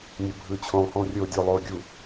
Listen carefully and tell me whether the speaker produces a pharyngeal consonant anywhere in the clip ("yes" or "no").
no